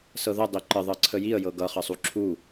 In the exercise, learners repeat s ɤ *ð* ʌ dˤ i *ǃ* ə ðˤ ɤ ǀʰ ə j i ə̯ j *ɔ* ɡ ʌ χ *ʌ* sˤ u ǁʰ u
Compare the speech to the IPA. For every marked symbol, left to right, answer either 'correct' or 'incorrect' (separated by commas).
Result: correct, correct, incorrect, correct